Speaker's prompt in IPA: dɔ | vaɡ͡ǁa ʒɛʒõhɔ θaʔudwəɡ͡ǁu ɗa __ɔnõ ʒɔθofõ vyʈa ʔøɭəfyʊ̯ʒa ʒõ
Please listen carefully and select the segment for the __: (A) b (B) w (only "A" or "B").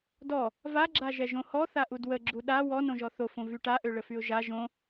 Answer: B